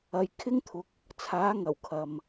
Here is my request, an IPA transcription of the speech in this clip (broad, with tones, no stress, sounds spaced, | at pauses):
ɐ˨ j kʰ ɪ˥ ŋ t̪ʰ ʊ˨˥ k̚ | t͡sʰ aː˨˥ ŋ ɐ˨˩ w kʰ ɐ˨ m